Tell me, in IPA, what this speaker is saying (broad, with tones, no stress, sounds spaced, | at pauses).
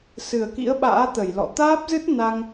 s ɨ˨˩ ə̯ k ḭ˧˥ ə̯ ɓ a̰ː˧˥ t̪ ə˧˩ j l ɔ̰˧˨ t̪ aː˦˥ p̚ z ɨ˦˥ t̚ n a˧ ŋ